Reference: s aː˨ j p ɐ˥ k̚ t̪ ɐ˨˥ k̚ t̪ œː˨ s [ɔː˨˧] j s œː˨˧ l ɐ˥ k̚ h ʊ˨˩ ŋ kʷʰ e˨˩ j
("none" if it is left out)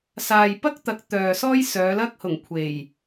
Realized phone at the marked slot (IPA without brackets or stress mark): ɔː˥